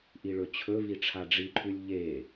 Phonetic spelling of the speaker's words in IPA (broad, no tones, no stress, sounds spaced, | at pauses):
ʔ i ɭ ɵ t͡ɕʰ ɵ v i ʈ͡ʂʰ a ɖ͡ʐ i ǃʰ ʉ lʲ ʎ e